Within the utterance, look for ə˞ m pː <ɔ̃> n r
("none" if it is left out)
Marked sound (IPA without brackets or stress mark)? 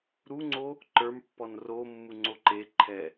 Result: ɔ